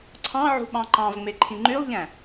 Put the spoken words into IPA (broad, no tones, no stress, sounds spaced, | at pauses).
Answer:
ǀʰ ɑ̃ ʕ ṳ ɓ ɑ̃ ǃ ɑ̃ v ŋ͡m e ǃʰ ĩ ŋ͡ǃ y lˠ ʎ æ̃